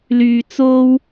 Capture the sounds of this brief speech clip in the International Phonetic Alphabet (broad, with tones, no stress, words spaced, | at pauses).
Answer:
lyː˨t͡so˧w